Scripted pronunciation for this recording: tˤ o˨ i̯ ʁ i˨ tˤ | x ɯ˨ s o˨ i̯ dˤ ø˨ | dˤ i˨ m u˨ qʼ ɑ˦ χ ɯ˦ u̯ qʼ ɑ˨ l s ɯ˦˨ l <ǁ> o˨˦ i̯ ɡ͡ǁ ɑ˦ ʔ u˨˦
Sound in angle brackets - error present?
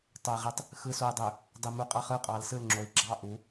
yes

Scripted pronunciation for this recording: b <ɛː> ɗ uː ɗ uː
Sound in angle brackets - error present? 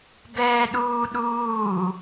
no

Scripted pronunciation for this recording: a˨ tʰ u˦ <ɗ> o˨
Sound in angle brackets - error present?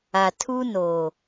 yes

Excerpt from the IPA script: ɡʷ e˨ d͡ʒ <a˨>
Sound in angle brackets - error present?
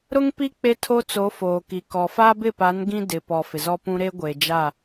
yes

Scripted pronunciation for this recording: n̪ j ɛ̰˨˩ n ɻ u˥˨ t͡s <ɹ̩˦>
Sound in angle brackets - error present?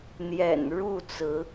yes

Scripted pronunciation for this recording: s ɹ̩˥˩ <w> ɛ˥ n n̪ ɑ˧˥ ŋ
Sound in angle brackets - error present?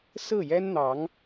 yes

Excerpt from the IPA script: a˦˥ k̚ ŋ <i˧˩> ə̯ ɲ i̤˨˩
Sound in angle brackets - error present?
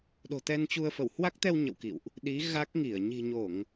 no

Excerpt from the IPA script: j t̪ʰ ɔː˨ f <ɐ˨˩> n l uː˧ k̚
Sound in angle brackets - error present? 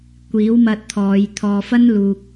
yes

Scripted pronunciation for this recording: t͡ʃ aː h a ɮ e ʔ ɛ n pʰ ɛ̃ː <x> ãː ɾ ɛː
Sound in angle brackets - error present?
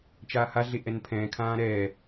yes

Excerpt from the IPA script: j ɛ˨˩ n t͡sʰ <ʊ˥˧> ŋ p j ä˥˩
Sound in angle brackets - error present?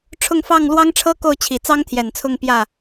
no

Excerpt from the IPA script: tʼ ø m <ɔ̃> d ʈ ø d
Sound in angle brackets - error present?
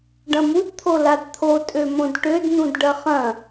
yes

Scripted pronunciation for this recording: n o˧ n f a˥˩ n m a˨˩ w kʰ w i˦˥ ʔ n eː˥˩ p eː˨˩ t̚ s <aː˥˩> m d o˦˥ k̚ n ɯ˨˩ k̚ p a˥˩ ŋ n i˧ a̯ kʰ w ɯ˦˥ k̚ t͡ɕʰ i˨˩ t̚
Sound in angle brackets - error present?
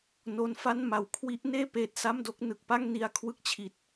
yes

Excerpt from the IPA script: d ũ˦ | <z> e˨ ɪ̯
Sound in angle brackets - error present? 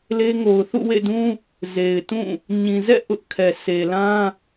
no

